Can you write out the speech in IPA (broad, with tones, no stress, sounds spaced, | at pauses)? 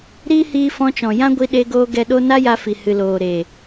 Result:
ɾ iː˦ h iː˧ f ɔ̃˧ t͡ʃ ɔ̃˨ j ã˦ ɡʷ i˧ ɗ e˧ ɡ oː˧ ɡ ɛ˧ ɗ o˦ n a˦ j a˧ f i˨ h ɨ˨ l oː˨ ɾ e˨